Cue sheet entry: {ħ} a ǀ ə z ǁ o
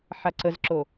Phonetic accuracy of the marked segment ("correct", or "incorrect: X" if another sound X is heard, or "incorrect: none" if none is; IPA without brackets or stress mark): correct